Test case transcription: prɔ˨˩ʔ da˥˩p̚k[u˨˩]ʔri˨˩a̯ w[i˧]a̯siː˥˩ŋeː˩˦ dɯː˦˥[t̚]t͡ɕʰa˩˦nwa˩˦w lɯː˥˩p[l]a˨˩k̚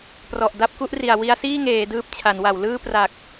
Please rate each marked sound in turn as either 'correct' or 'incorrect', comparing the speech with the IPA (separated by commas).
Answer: incorrect, correct, incorrect, incorrect